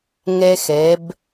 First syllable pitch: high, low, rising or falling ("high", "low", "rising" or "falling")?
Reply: high